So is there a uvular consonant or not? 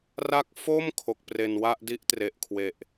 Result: no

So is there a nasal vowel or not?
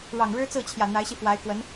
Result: no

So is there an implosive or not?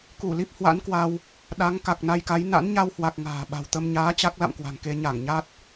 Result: yes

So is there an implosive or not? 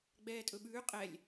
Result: yes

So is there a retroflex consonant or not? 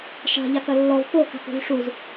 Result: yes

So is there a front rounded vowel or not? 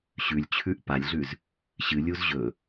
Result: no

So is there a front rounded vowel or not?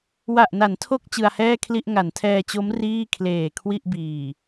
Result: no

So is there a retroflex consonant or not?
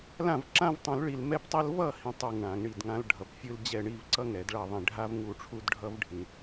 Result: yes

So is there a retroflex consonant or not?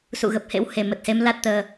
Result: no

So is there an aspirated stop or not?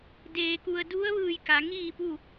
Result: no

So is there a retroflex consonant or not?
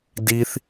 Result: no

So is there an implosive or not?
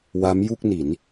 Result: no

